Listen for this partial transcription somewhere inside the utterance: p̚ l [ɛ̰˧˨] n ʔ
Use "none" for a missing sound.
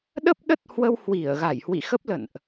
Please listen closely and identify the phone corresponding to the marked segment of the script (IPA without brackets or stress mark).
ə̰˧˨